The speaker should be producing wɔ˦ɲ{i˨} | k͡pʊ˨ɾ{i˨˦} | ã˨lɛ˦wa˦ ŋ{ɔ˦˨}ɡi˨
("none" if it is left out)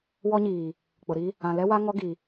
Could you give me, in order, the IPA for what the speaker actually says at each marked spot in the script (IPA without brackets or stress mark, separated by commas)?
iː˨, i˦, ɔ˦